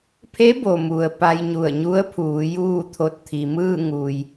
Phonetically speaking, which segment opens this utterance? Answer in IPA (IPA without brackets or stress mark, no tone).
pʰ